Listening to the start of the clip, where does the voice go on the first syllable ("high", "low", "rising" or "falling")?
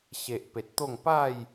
low